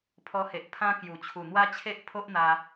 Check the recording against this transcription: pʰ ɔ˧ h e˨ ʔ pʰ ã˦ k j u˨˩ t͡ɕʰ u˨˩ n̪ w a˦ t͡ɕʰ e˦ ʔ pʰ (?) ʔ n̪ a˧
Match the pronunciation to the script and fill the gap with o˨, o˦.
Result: o˦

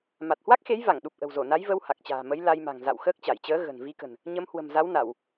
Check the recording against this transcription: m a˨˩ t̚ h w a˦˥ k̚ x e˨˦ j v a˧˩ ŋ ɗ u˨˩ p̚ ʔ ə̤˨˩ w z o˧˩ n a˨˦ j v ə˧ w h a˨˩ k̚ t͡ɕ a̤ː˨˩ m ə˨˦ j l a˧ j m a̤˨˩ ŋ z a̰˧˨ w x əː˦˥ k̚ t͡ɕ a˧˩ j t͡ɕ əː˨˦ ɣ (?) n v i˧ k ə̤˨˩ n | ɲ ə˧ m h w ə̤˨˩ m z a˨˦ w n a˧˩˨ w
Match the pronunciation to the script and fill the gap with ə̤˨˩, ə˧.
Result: ə̤˨˩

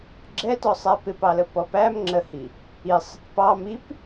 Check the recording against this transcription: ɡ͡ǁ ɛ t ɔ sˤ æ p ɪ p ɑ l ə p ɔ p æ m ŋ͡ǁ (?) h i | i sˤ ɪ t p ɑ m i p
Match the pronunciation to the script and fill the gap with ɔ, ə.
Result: ə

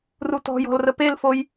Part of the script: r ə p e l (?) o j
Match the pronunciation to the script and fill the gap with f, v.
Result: f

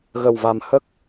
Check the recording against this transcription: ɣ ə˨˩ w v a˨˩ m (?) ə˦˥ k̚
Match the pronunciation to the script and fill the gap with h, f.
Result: h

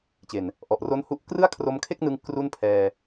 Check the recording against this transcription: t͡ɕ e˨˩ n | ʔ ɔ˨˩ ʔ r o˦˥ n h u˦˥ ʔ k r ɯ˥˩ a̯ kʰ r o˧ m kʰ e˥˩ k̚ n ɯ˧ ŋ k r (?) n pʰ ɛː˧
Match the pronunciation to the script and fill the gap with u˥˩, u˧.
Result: u˥˩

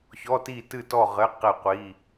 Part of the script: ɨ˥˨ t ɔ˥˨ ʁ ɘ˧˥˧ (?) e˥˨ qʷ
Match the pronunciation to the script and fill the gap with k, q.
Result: q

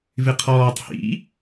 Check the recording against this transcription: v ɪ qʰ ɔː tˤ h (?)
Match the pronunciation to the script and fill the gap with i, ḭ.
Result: ḭ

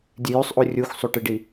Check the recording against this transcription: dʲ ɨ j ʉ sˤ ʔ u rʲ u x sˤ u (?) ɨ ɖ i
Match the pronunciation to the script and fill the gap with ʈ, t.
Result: ʈ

